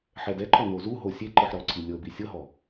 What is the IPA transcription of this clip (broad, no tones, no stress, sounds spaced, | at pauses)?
ħ ɛ d ɛ ǃ ɔ n o z u ɦ o sʲ e ǃ ɯ ħ ɾ ɔ ǀ i lʲ ɤ b i sʲ ɤ ɦ ɔ